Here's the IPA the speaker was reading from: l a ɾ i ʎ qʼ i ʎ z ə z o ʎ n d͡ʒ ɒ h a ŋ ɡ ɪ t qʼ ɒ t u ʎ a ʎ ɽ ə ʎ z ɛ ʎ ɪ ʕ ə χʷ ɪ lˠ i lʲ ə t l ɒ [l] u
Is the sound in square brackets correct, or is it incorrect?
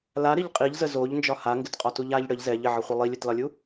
incorrect